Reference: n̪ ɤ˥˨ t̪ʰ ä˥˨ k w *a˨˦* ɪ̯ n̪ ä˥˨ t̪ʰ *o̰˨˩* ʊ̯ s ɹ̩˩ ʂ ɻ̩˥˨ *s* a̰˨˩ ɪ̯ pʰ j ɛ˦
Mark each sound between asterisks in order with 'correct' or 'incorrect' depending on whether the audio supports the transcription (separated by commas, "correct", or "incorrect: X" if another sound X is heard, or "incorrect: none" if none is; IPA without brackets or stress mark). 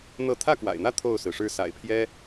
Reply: incorrect: a̰˨˩, incorrect: o˥˨, correct